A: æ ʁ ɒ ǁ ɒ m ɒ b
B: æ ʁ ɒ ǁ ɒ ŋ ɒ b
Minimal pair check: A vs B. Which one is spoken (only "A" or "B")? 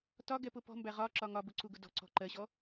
B